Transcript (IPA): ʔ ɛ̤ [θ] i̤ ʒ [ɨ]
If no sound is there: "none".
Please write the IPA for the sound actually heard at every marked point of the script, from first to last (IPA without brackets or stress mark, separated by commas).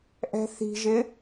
θ, ɪ